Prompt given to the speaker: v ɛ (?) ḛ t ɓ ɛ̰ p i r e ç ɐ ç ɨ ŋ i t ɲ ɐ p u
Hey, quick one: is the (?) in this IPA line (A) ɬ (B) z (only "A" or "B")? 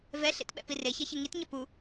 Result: A